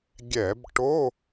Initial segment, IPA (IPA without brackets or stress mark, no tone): ɡʲ